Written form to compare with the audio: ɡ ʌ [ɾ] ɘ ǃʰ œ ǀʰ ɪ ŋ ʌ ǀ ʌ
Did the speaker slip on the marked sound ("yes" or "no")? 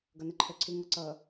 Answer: yes